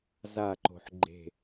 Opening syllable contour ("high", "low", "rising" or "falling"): falling